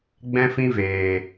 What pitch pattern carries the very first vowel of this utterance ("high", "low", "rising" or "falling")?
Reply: high